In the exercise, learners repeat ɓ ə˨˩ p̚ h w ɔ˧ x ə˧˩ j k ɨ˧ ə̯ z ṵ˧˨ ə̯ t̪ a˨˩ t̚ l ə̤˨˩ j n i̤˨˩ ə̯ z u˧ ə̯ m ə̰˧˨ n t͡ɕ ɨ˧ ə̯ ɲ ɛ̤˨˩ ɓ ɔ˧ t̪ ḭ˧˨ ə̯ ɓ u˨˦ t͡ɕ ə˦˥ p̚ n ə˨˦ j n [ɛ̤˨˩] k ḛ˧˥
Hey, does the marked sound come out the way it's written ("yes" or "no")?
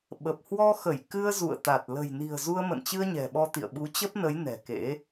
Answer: yes